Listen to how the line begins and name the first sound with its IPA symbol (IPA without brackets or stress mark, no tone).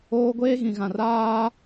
oː